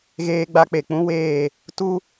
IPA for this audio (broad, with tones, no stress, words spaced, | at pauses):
ɣeː˦ɡ͡ba˦k͡pe˨ k͡pũ˦weː˦˨ | tu˦